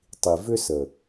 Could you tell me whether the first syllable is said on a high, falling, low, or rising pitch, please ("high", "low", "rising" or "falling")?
low